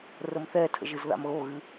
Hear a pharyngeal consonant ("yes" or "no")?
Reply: no